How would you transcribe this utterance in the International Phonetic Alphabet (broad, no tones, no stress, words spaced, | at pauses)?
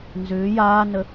nzʏː jaːnə